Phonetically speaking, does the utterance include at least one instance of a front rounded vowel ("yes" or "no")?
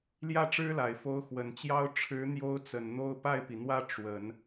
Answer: no